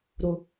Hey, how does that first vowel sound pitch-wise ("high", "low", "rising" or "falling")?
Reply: low